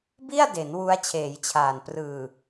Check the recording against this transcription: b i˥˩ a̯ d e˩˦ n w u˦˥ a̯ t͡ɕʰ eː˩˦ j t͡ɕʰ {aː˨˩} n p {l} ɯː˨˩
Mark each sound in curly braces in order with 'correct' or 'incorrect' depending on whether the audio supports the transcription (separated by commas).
correct, incorrect